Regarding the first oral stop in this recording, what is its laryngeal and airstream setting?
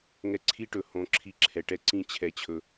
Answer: click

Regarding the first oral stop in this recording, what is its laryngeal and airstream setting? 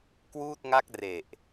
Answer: plain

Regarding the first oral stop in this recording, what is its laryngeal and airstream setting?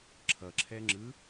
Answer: click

